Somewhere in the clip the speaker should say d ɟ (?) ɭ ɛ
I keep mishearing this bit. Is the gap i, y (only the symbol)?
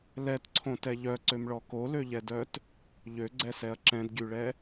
y